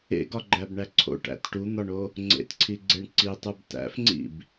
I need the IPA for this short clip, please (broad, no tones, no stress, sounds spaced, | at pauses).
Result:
ḛ ɡ ɒ ɡ͡ǃ æ b ɳ æ ǀʰ o̰ ʈ æ̰ t ʈ u n̪ ɒ ɳ o | ŋ͡ǀ ḛ t ǀʰ i ɡ͡ǀ e ɳ ǀ i tˤ u b t æ̰ f ŋ͡ǀ ḭ b